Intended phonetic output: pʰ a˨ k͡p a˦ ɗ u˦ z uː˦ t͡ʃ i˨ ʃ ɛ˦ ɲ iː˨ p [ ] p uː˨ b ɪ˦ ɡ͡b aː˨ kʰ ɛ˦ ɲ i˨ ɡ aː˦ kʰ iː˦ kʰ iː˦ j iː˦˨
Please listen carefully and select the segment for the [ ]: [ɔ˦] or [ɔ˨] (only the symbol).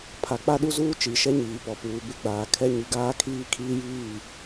ɔ˨